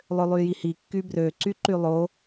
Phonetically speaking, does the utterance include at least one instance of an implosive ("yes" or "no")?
no